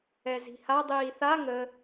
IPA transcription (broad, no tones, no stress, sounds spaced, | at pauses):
ɛ z i̤ h a dˤ iː θ a ŋ ə